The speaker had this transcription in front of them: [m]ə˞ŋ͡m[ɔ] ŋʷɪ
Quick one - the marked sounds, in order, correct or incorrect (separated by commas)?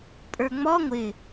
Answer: incorrect, correct